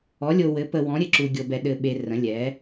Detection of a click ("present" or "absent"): present